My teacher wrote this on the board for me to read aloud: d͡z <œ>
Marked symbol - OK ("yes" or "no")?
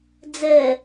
no